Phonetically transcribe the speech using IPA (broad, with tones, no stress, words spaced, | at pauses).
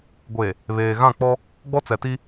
ɡʷe˨ | βeː˨ɣã˦˨k͡pɔ˦ | ɡ͡bɔ˦t͡sɛ˨ti˦